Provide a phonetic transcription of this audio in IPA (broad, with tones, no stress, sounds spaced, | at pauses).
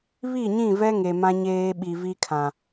β i˦˨ ɲ ĩ˦˨ v ɛ˦ ŋ e˨ m ã˦ ɲ eː˦ ɓ i˨ v i˦ kʰ ã˨